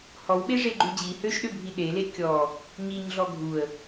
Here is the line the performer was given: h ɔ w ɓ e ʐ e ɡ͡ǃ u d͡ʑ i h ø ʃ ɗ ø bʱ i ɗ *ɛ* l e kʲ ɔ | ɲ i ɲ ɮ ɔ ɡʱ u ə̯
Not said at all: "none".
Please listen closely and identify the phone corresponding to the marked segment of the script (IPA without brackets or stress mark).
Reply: e